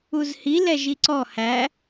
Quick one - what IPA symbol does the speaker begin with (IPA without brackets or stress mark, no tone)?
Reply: u